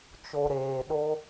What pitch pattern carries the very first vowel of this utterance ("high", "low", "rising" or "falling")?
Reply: low